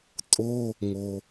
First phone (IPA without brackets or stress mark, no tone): tʼ